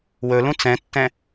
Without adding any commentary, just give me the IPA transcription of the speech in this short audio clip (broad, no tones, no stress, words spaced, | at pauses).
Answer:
wɵlũ t͡sɛ̃tːɛ̃